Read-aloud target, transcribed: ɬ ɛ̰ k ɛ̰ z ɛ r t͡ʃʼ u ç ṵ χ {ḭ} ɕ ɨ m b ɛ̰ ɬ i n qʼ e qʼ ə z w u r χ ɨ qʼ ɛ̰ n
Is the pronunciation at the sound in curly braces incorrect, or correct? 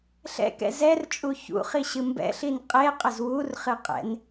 incorrect